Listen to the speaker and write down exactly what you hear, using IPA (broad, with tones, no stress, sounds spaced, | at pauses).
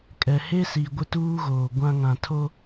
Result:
kʼ ɛ˨ h e˦ s i˨ ɡʷ ɪ˦ t uː˦ ɣ oː˨ ɡʷ ã˦ ŋ ã˨ tʰ o˦